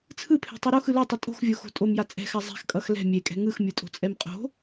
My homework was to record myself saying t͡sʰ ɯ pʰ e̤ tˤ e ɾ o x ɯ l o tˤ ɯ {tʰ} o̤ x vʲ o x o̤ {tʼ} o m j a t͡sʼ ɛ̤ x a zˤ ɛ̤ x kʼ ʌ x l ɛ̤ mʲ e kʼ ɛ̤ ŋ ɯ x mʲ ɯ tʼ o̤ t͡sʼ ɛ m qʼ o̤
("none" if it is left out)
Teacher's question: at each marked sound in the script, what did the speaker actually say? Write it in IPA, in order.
tʼ, tʼ

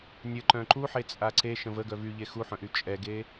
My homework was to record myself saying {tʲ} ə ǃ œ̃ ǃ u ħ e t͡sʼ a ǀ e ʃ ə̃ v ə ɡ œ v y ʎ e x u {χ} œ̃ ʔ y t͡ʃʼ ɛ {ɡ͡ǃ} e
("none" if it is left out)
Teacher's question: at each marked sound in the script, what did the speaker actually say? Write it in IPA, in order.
nʲ, ħ, ɡ

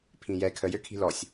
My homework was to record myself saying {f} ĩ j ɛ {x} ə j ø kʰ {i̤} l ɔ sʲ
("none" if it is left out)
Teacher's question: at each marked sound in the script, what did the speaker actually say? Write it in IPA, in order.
pʰ, kʰ, i̤

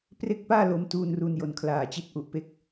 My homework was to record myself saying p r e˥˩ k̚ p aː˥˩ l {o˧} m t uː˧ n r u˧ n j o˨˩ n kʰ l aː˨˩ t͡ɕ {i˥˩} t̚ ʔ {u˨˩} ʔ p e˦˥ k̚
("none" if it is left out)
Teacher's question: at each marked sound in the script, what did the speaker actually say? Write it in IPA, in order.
o˧, i˦˥, u˨˩

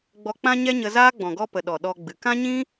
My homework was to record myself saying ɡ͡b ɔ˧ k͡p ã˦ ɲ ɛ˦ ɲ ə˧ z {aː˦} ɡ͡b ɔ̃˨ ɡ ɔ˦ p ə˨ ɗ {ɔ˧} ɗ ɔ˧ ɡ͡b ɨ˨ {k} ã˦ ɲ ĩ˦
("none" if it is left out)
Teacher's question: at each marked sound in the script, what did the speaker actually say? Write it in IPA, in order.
aː˦, ɔ˨, k

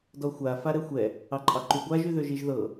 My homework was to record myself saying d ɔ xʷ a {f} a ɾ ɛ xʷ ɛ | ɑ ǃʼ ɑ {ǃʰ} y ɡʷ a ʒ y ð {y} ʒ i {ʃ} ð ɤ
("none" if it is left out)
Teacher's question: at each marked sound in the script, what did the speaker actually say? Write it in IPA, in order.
f, ǃ, ø, ʒ

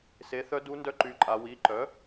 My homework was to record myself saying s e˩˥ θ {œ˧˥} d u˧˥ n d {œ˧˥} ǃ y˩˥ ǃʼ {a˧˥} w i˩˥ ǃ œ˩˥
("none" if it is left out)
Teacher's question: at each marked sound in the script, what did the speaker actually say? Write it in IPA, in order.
œ˧˥, œ˧˥, a˩˧

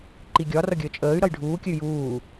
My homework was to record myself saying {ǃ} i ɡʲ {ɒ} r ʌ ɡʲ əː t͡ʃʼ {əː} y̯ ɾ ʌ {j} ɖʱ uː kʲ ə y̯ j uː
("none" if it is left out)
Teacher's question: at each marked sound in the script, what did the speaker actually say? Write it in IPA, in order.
ǃ, ɒ, əː, j

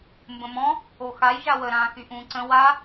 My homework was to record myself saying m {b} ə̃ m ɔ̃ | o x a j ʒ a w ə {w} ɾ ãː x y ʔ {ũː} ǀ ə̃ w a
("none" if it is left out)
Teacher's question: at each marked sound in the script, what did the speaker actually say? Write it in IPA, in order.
b, none, ũː

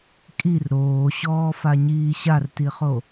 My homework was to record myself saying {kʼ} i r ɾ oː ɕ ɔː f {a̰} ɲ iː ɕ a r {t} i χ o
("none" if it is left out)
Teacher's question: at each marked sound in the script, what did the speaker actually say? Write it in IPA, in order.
kʼ, a, t

